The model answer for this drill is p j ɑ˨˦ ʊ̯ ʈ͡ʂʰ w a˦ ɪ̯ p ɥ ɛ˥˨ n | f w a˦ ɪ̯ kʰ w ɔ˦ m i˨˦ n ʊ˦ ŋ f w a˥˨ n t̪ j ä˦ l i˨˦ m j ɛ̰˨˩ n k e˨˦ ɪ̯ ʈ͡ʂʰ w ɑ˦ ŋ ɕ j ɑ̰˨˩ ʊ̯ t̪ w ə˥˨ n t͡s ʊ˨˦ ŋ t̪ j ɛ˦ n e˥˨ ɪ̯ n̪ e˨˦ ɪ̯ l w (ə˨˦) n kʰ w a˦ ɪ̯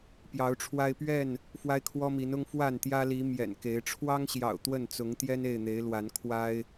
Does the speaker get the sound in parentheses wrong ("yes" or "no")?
yes